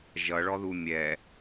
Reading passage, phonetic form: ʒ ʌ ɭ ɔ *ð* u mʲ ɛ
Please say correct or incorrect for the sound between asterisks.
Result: correct